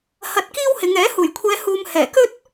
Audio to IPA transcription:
hɐ˧t̚kiː˥whɪ˨˧ŋɛː˨˥ huː˨˩jkʷʰɛː˨˧huː˨m hɛː˨˩kɵ˥t̚

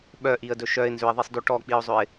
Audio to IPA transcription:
ɓœʔiə̯dɵ ʃœɪ̯nzøɪ̯ðˤisˤdø ʈɔk͡piʊ̯zˤɵɪ̯

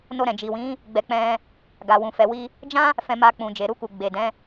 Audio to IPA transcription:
no˧ɾɛ̃˨d͡ʒi˨wĩ˨˦ | ɡ͡bɛ˧k͡pɛ̃˧ | ɡa˨ wũ˨ fɛ˨wi˧ | d͡ʒã˦ | fɛ̃˧ma˧ k͡pũ˨d͡ʒe˨ɾu˧ku˨ ɡ͡be˨dɛ̃˨˦

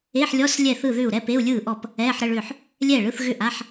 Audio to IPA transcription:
e˧˥˧ħlʲɔ˧˥˧s lʲɛ˥˩θɯ˥˩ðʏː˥˩u̯ ɾɛ˧˥˧pe˧˥˧u̯lʲɯː˥˩ʔɔ˥˩p | ɛː˧˥˧ħɾə˧˥˧ɭʏː˥˩ħ | lʲɛː˥˩ɭɯ˧˥˧θɣʏ˥˩ ʔa˧˥˧ħ

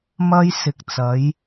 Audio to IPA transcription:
mɐ˧j sɪ˨k̚t͡sɐ˨˧j

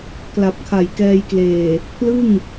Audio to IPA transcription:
kla˨˩p̚kʰa˨˩jkɛː˧jkleː˨˩ | pʰlɯ˥˩ŋ

